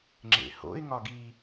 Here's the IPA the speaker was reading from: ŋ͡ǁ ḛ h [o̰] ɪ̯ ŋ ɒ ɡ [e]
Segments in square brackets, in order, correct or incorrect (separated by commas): correct, incorrect